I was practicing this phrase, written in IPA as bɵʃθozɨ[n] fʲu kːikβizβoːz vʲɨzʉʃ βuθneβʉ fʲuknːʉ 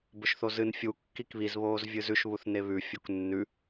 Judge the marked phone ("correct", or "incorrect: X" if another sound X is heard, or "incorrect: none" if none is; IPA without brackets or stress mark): correct